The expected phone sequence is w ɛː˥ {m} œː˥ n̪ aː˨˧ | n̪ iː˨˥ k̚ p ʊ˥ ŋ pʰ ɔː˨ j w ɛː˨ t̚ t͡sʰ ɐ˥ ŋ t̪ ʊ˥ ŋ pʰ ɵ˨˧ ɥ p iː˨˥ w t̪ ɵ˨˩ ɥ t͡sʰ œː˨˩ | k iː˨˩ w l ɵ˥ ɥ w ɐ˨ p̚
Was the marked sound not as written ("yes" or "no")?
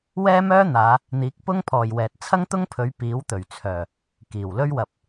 no